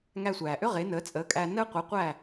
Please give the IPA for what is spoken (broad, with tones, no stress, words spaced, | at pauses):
ŋæ˧sʷæː˩ʔʏ˥ ʁe˩˥nəː˩˥t͡sʼəː˩˥kʼæː˧ nəː˥ qʷi˩˥qʷæ˥˩